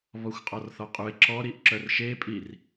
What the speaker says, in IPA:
β ɔ xʷ qʼ ɔ r θ ɔ qʼ u ɪ̯ ǁ ɔ ɾ i ʔ ǁ œ r ʃ e pʼ i r

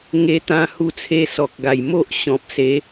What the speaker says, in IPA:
ŋ e˧ t̪ ã˧ h u˧ t͡sʰ e˧ s ɔ˨ k̚ ɡ a˨˩ j m o˦ ʔ ɕ ɔ̃˨ p̚ s e˨˦

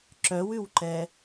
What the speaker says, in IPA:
ǁ œ w ʉ w ǃ ɛ

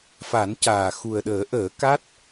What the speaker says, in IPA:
f a˨˩˦ n c aː˨˩ x u˨˩ ə̯ ɗ əː˨˩˦ ʔ əː˨˩˦ k a˦˥ t̚

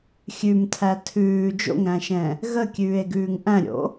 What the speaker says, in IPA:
xʲ ʉ m tʰ æ tʰ ʉː d͡ʒ o̰ ŋ ɾ æ̃ ʃ ɛ̃ | ɣ ə kʲ ʉː e̯ ɡ ʉː ŋ ʔ æ̃ ɾʲ o̰

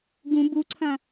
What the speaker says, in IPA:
ɡ ũ b u ǀʰ ɐ̃

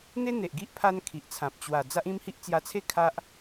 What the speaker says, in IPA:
n̪ e˦ n̪ e˨ ʔ ɡ i˦ ʔ pʰ a˦ n kʰ i˨ ʔ t͡sʰ ã˨ p̚ t͡ɕ w a˨˩ d͡z a˦ ʔ ĩ˦ m h i˦ ʔ t͡s j a˧ t͡sʰ e˥˧ kʰ a˦ ʔ

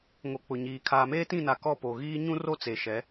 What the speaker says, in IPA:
ŋ o˨ k͡p ʊ˨ ɲ iː˨ kʰ aː˨ m eː˦ t ĩ˦˨ n a˨ k ɔ˦˨ p o˨ ɣ iː˦ ɲ ũ˦ r o˦ t͡s e˨ ʃ ɛ˨˦

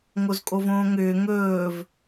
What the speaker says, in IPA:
ŋ o z kʼ o v õː ŋ ʏː ŋ ɵː v

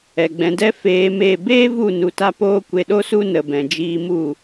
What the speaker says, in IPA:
ɛ˨ ɡ͡b ɛ̃˧ d ɛ˦ f eː˧ m e˦˨ b eː˦ v u˦˨ n u˧ t a˦ p oː˦ kʷ e˧ ɗ o˦ s u˦ n ə˧ b ɛ̃˧ d͡ʒ iː˦ m u˦˨

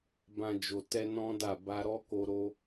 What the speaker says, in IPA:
b ã˧ d͡ʒ o˨ t ɛ˧ n ɔ̃˦ d a˦˨ b a˧ ɾ ɔ˦ k o˧ ɾ o˦

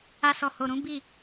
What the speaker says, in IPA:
a˧ s ɔ˨ h o˨ ɾ ũ˨˦ b i˦˨

